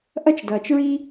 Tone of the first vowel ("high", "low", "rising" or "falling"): high